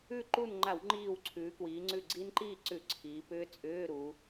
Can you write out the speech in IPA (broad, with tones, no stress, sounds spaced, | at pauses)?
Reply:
ʉ˥˨ ǃ u˥˨ n ŋ͡ǃ a˧˩˧ w ŋ͡ǃ iː˧˩ w ǀʰ ʉː˩˧ k w iː˩˧ ŋ͡ǀ ʉ˧˩ ɡ͡ǀ i˦˥ n ǃ iː˥˨ ǀ ʉ˧˩˧ ǀʰ iː˩˧ p ʏː˦˥ t͡sʼ ʏː˧˥˧ ɾ u˩˧